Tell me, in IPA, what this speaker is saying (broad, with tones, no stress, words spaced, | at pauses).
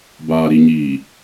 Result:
baː˨ɾi˨ɲiː˨